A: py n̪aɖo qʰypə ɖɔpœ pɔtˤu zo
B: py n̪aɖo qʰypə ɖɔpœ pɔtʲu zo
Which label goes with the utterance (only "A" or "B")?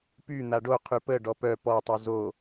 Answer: A